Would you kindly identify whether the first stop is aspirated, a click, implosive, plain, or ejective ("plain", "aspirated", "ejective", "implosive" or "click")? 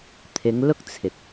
aspirated